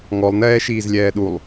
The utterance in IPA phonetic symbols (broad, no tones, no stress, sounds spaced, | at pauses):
ŋ ɔ lˠ n ɛː ʃ iː z lʲ ɛː ɗ u lˠ